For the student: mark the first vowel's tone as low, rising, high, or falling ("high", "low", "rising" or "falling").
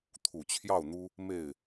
low